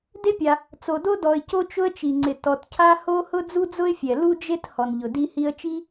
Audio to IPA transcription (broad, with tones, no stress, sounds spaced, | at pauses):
d e˥ pʲ a˩ | t͡s o˩ d o˥ d ɔ˩ ɪ̯ c o˥ t͡ʃ ʊ˥ ə̯ t͡ʃ i˩ ŋ͡ǀ ɪ˩ t ɔ˩ t cʰ a˥ h o˥ h ʊ˥ d͡z u˥ d͡z ʊ˥ ɪ̯ fʲ ɛ˩ l u˥ d͡ʒ e˥ t h ɔ˩ n ʎ ʊ˩ d i˥ h i˥ ə̯ t͡ʃ i˥